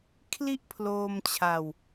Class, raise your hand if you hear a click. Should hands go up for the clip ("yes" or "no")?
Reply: no